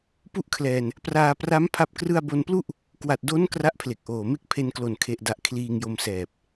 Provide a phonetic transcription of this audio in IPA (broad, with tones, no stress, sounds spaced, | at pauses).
p u˥˩ ʔ kʰ l ɛː˧ n | p r aː˧ p r a˦˥ m pʰ a˦˥ p̚ k r ɯ˥˩ a̯ b o˧ n p l u˥˩ ʔ | k w a˨˩ t̚ d o˦˥ n k r a˥˩ ʔ pʰ l e˨˩ k̚ ʔ oː˨˩ m e˥˩ k̚ pʰ e˧ n k l o˨˩ n kʰ e˨˩ ʔ d a˨˩ ʔ kʰ l iː˧ ŋ j o˧ m s ɛː˨˩ p̚